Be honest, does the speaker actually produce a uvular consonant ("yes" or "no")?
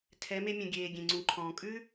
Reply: no